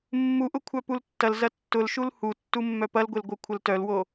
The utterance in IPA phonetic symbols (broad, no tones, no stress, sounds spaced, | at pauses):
mː u ʔ ʊ kʷʰ œ p u l tː ɐ l z ɐ tː ʊ l ʃ u l h u tː u mː œ p ɐ l ɡʷ e l ɡʷ œ kʷʰ ə l t œ l w o